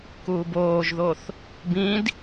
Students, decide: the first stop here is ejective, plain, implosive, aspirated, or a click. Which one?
plain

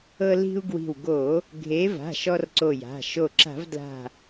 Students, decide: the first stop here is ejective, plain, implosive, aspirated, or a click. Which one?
plain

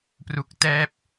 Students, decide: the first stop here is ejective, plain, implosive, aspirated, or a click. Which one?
plain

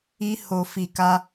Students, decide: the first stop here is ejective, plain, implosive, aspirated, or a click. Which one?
plain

